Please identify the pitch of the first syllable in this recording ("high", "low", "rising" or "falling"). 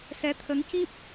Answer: rising